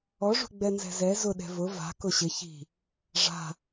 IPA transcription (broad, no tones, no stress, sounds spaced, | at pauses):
ɔ ʐ ṳ ɡ͡b ɛ n z ɛ̤ z ɛ z ʊ ɗ ɛ̤ v ʊ v a̤ k ʊ ɕ ɪ ç i̤ | ʐ a̤